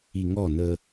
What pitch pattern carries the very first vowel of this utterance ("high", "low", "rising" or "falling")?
low